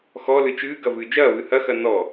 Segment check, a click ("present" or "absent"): absent